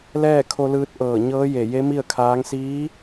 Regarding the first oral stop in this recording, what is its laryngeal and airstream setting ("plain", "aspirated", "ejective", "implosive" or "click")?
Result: aspirated